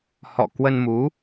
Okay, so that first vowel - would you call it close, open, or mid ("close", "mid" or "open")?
mid